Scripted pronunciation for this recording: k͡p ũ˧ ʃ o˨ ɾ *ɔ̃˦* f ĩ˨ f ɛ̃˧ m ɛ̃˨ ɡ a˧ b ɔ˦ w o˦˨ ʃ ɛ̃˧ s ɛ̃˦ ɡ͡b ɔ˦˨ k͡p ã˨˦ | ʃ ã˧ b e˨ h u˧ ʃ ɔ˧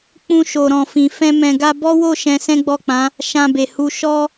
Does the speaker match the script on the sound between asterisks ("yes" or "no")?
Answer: no